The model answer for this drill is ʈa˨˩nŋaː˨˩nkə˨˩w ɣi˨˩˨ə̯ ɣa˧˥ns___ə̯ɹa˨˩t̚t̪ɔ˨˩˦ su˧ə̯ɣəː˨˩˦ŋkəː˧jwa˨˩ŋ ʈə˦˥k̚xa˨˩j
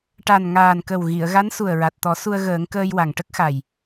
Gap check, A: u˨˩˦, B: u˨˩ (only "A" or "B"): B